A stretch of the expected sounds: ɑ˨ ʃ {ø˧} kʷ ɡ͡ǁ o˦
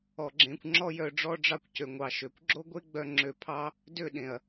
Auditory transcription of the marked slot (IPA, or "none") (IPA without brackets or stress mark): ø˨